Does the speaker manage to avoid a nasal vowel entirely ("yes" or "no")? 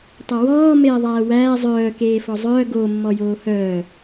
yes